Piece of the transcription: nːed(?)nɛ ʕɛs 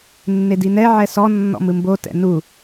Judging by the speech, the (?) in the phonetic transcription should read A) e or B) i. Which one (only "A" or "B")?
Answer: B